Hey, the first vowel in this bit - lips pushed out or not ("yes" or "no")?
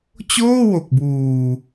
yes